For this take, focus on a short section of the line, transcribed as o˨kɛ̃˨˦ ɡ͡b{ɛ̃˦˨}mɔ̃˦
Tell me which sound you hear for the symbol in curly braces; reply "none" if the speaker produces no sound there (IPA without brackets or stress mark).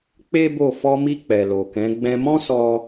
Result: ɛ̃˧